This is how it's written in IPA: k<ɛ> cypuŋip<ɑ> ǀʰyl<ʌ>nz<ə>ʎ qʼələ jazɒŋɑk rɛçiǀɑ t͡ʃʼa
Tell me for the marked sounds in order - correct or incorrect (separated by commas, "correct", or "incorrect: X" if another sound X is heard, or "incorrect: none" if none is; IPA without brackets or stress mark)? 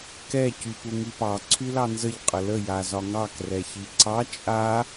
correct, correct, incorrect: ɑ, correct